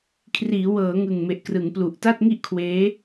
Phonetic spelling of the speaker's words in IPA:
kʰ r iː˩˦ w ɤː˩˦ ŋ ɯ˨˩ ŋ m e˨˩ ʔ k r ɯ˩˦ ŋ p l u˨˩ ʔ t a˥˩ t̚ ŋ i˥˩ ʔ kʰ w eː˦˥

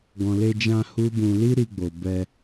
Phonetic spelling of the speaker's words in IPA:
ɡ ɔ̃˨ l e˧ d͡ʒ ã˧ h u˦ b ũ˧ l i˦ ɾ i˧ ɡ͡b o˨ b ɛ˧

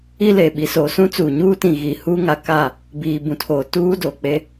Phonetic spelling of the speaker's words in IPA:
i˦ l eː˨ ɓ i˨ s oː˨ s ũ˦ t͡s uː˨ ɲ uː˦ t ĩ˨ ɣ i˨ h uː˦ ŋ a˨˦ k a˦˨ | b iː˨ b ũ˨ tʰ oː˨ t uː˦ d oː˨ k͡p e˦

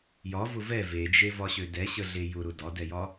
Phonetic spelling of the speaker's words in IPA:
j ɒ v ʊ v ɛ v e d͡ʒ e v ɒ ɕ ø d ɛ ɕ ə ɮ e j ʊ ɾ ʊ d ɒ d ɛ j ɒ

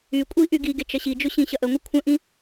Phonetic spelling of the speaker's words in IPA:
y kʷʼ i ʔ y ɡ i ɡ e t͡ʃ ɐ ɕ i d͡ʒ ʊ ɕ ĩ ɕ ɐ ʔ ə ŋʷ ə kʷʰ ə̃ ʔ ĩ

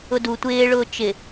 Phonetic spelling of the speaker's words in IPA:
ʊ d u tʷ ɪː ɭ ʊː t͡ʃ ɪ

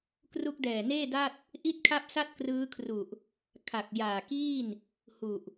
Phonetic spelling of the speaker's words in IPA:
k r u˦˥ k̚ d ɛː˨˩ n eː˥˩ d a˥˩ t̚ | ʔ i˥˩ t̚ kʰ a˥˩ p̚ s a˥˩ t̚ k r ɯː˦˥ kʰ r u˨˩ ʔ | kʰ a˨˩ k̚ j aː˨˩ k iː˥˩ n | h u˨˩ ʔ

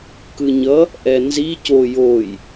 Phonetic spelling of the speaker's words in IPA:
k ɯ ɲ ʌ | ʔ ɛ n z i c o j o j

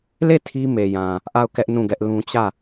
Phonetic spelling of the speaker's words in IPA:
l e˦˨ tʰ i˦ m e˨ j ã˨ | ʔ a˦˨ ʊ̯ k ɛ˦ ʔ n ũ˦˨ ɡ ɛ˦ ʔ l ũ˦ t͡ɕ ä˦˨

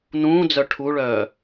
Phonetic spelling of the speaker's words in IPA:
n ũː d͡z œ ʈʰ u ɭ œː

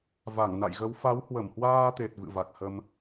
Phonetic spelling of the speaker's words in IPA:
v a˧˩ ŋ n a̰˧˨ j ɣ ə˨˦ w f a˨˦ w h w ə˧˩ m h w aː˧ t̪ e˨˩ t̚ v ɨ̰˧˨ v a˨˩ k̚ h ə˧ m

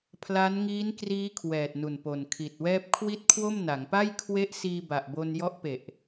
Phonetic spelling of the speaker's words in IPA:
pʰ l a˦˥ n ŋ iː˦˥ n k r iː˦˥ kʰ w ɛː˨˩ t̚ n u˨˩ n p o˨˩ n kʰ i˨˩ t̚ w ɛː˥˩ p̚ kʰ w i˥˩ t̚ kʰ w o˥˩ m n a˩˦ ŋ p a˥˩ j kʰ w e˦˥ ʔ s iː˧ b a˨˩ ʔ b o˧ n j ɔ˦˥ ʔ p e˨˩ ʔ

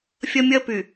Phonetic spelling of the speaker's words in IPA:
fʲ ɐ˦ mʲ ɐ˦ p y˨

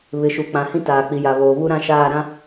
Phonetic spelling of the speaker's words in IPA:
β ɪ˨˦ ʃ u˨ k͡p ã˨ h ĩ˦ t aː˨ k͡p i˨ j a˨ β oː˨ β u˦ ɾ ã˦ ʃ aː˦˨ ɾ ã˦

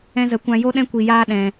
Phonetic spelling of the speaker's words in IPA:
ɛ̃˧ z ə˨˦ kʷ ã˧ j o˦ ɗ ɛ̃˦ kʷ i˧ j aː˦ ɗ ɛ̃˧

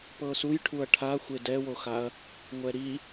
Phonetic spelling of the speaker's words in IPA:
p ɤ s u j ʈʰ u ɐ̯ ʈʰ a xʷ e d ɛ w o x a ɐ̯ | ŋʷ ɛ ɾ i

